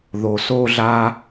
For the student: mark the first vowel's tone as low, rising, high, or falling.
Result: low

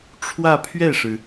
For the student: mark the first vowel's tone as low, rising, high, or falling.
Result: falling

